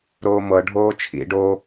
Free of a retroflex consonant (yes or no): no